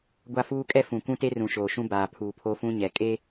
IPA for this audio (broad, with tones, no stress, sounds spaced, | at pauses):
ɡʷ a˦ f uː˦ kʼ ɛ˦ f ũ˨ kʷ ũ˦ t e˦ r ũ˨ ʃ oː˨ ʃ ũ˦ b aː˨ pʰ uː˨ pʰ o˦ f ũ˦ ɲ ɛ˨ kʼ e˦